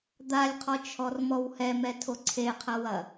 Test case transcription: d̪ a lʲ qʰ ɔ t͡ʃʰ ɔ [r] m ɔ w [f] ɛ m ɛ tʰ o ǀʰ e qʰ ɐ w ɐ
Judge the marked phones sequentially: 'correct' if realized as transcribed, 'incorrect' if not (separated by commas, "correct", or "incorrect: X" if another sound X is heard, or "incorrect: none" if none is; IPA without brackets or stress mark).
correct, incorrect: h